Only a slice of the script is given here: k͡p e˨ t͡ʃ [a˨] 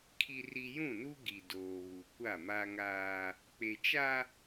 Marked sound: incorrect: a˦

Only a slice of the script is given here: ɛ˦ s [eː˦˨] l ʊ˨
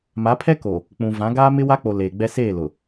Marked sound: correct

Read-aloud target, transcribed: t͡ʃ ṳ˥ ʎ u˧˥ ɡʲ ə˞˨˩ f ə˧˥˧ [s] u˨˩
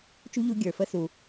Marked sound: correct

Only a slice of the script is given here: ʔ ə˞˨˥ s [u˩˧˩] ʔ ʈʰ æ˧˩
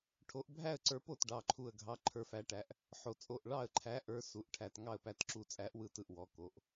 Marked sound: correct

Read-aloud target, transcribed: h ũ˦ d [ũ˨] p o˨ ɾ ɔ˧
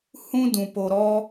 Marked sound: correct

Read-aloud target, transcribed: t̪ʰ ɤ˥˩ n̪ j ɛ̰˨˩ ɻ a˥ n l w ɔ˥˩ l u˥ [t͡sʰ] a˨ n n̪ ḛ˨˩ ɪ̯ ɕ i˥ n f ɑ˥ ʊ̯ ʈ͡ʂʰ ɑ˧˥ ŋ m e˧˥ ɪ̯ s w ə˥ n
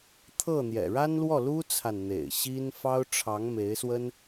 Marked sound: correct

